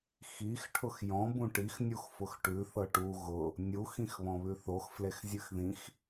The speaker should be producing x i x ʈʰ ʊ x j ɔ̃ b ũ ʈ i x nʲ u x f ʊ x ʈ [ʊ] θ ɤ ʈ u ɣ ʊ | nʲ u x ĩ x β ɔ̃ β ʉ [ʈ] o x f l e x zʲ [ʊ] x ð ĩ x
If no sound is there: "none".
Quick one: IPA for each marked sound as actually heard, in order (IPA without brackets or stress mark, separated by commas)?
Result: ʉ, θ, ʉ